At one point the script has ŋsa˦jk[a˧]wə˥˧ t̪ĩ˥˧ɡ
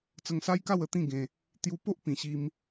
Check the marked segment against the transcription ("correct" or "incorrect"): incorrect